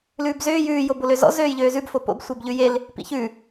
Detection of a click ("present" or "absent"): absent